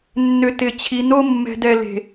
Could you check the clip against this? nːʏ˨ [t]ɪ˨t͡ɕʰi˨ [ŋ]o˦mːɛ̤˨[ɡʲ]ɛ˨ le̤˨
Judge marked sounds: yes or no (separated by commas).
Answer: yes, no, no